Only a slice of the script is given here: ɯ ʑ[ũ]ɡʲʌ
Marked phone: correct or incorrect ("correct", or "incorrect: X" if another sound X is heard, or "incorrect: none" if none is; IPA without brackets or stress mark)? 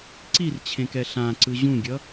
correct